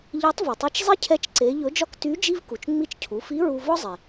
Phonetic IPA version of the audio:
ʎe˧˥tˤvɵ˩tˤi˧t͡ʃ zˤi˥cʰɛ˧˥t͡ʃǀe˩˧ ʎɵ˧˥d͡ʒɒ˥k ty˧˥ d͡ʒi˥vku˩t͡ʃ ŋ͡mi˧˥t͡ʃcʰu˩˧fi˧˥ ɹu˧vɔ˥zˤe˩

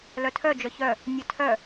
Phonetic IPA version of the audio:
lœtʰœ d͡ʒœçœ | nʲœtʰœ

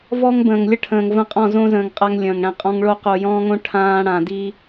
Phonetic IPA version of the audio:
vɔ˦ŋbə̃ː˨ŋ lʲə˦ʈʰə̃ː˨ŋvə̃˦ qʼɔ̃˦˨zõ˦zə̃ː˨ŋ qʼa˦ŋlʲə̃ː˨ŋ ɽɛ̃˨qʼɔ̃˦ŋɭo˦ qo˨jɔ̃ː˦ŋõ˦ ʈʰãː˦ ɽã˨di˦

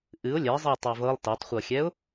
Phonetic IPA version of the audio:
ʔɨʊ̯ lʲɛzˤɨʊ̯ tˤøvɤlˠ tɤtˤχʷɤxʲɛʊ̯

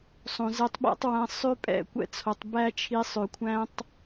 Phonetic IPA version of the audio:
sˤõ˨zɛ˧tˤɓæ̰˦tˤwæ̃˧ sˤø˦pʼɛ̰˦˨kʷɛ̰˦t͡sʰo˨tˤ bæ˦t͡ʃʰi˧sˤø˨kʷʰæ̃˦tˤ

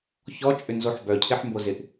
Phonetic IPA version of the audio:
çɔt͡ʃʼʏnzoħ bœcʰɪħmbo zɪʔ

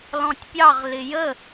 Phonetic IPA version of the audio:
lɔ̃tʲpʲɑʁ lɪjə

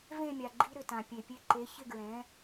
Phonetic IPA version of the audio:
vẽ˥˨mʲa˩ ɡ͡ǃi˧ɾʏ˩tã˩ pʲe˩pʲe˧ ǃe˩˥çɪ˥˨ɡɹɛ̃˩˥

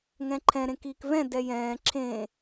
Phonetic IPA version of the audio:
ŋɛ̃ǃʰɛ̃ ɾẽkiːkvɛ̃ dɛjɛ̃ː ǁʰẽ

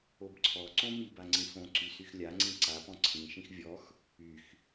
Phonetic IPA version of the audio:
obǀʰɔǀõ mib aŋ͡ǀĩfõǀy syxlʲaŋ͡ǀĩ ǀapɔ̃ ǀʰĩʃĩx vʲɔx | yx

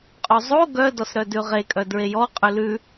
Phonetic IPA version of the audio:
qʼozˤo ɡœ dɔsɾœdʉʁe kʼœdɹejɔ qʼʉlʉ

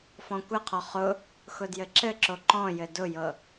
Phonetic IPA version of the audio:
fɔ̃kʷɘqʰɔ χʊ | xʊdjɘǁɘǁo ǃɔ̃jɘ dʊjɤ

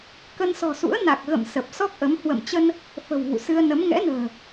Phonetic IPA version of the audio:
kə˧nsɔ̤˨˩sṵ˧˥ə̯ na˨˩k̚ɣə̰˧˨m sə˨˩p̚sɔ˦˥k̚ʔə˨˦m hwə̰˧˨m t͡ɕə˧n | fə̤˨˩wvṵ˧˨sɨ˧ə̯nə˨˦m ŋɛ̰˧˥nə̤ː˨˩

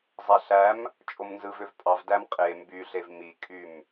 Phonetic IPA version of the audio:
zˤæɬæm | t͡ʃʼomnzɯvøvpʼɑv dæmqʼe mbyɬev mikʼym

